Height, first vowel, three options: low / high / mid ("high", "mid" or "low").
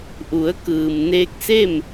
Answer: high